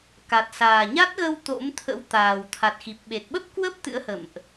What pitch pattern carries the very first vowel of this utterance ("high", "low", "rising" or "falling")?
low